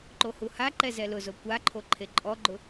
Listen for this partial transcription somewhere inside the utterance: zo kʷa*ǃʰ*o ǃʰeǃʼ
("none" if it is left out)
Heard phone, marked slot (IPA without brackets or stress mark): ǃʰ